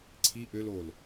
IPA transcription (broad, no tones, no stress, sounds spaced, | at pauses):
ǀʰ i ʔ ø l o l